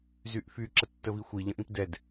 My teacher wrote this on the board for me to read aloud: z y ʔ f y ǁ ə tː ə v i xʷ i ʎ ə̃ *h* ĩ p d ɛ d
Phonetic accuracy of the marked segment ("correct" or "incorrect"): incorrect